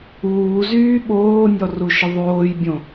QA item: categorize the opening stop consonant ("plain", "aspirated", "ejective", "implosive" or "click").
implosive